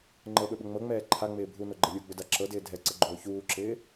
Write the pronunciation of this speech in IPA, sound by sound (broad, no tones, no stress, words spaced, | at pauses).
ŋ͡ǃɤɓɵɓə ŋ͡mɤŋ͡mɛː ǃʰaŋ͡mɪː bʱunoɡ͡ǃə lʲuɡ͡bɵda ǁɤdɪː dʱɛǀəɡ͡ǃoː çuːǁɪː